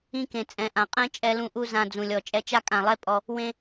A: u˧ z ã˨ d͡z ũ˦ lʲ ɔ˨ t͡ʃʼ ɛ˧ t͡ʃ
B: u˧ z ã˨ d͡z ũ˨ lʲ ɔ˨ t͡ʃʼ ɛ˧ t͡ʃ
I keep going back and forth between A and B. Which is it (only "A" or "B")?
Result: B